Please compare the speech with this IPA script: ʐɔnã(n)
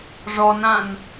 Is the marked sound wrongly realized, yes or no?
no